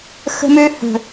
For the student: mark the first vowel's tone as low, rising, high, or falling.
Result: high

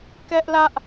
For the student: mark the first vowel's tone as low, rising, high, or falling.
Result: high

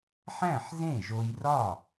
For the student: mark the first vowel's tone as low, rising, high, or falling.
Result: falling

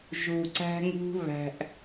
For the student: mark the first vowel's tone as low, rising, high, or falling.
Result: low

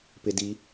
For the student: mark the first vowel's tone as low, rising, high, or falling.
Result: low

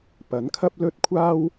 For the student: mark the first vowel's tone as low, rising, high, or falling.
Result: rising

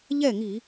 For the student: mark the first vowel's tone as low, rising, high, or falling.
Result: falling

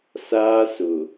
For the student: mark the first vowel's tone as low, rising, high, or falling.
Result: high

